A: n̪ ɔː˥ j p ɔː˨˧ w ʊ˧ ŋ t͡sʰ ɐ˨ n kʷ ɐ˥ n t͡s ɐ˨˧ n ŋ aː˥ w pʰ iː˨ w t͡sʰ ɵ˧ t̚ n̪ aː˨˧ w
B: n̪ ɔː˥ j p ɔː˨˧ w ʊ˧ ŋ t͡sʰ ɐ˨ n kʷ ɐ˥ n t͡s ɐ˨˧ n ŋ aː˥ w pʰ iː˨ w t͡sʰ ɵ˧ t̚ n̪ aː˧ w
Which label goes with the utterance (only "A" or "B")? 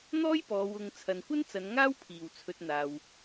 B